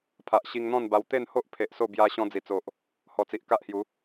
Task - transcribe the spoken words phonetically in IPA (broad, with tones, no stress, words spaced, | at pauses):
pʰa˨ʔɕi˧ŋn̪ɔ̃˥˧nba˧w t̪e˥˧nho˦ʔ pʰe˨ʔ so˥˧ bja˧ ɕɔ̃˧d͡zi˨˩t͡so˨ʔ | hɔ˨˩t͡si˨ʔ ka˦ʔhju˨˦